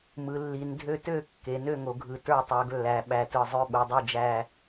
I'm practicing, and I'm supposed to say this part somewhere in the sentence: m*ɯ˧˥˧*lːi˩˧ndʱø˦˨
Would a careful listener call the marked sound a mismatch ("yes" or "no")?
yes